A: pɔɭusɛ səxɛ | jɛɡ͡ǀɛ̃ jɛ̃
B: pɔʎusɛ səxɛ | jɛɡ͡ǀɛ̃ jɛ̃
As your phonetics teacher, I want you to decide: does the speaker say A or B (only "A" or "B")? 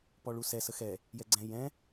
A